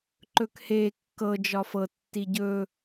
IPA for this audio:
ǃɵkhe kːɤ d͡ʒɒfɤ tːiɟɵ

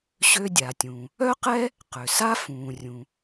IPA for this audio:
ɕø˧dʲa˩tʲũ˩ | œ˥qɛ˥ | qø˩sa˥ fũː˩rʲũ˩

